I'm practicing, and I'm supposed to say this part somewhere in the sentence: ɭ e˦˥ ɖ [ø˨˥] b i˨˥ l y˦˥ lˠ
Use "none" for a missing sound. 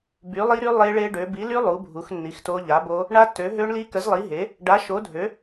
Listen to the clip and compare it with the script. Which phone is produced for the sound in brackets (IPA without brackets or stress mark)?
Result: ø˨˥